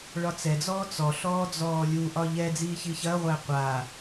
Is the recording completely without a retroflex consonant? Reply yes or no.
no